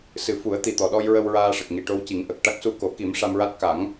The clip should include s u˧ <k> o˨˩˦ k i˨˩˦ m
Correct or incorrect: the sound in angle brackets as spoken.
correct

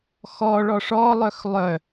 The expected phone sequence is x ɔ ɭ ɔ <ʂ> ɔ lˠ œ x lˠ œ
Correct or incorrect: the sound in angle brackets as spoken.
correct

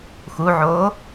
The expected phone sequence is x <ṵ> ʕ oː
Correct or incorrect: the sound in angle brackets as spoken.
incorrect: u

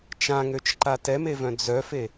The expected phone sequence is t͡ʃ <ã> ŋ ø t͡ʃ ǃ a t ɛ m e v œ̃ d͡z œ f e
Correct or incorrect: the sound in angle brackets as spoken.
correct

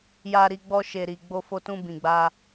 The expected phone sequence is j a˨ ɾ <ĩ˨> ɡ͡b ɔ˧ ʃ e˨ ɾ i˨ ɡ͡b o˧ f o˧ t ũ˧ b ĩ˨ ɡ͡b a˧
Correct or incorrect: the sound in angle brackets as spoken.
incorrect: i˨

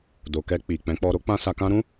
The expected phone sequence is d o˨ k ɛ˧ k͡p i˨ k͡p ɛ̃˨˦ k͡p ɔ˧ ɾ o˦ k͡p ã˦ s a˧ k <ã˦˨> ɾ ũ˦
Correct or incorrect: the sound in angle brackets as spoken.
incorrect: ã˦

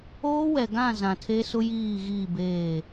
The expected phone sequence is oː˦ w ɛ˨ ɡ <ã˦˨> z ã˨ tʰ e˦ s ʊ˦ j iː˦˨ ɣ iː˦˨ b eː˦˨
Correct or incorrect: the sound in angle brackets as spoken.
correct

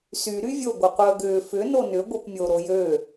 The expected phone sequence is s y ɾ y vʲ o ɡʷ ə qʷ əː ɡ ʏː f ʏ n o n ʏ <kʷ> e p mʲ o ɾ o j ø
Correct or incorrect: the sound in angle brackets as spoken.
incorrect: ɡʷ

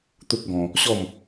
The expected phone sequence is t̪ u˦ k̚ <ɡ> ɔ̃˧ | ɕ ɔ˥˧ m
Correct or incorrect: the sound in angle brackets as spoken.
correct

